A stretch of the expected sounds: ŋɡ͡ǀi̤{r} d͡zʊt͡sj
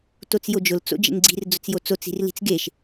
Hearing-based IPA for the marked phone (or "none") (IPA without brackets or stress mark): r